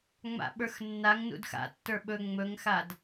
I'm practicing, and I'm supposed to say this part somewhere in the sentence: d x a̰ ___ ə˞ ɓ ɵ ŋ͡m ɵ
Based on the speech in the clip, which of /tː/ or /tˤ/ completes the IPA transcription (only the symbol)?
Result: tː